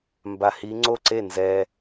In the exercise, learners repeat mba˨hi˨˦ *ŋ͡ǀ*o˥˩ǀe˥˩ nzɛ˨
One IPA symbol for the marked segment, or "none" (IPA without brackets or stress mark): ŋ͡ǀ